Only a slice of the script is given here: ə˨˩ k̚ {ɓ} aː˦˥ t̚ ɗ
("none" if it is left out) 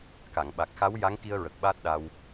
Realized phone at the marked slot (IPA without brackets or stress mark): ɓ